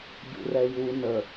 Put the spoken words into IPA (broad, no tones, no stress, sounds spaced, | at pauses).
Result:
ɟ ṵ r ɛ j u n ə